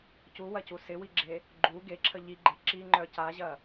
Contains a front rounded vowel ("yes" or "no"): yes